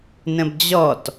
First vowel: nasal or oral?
nasal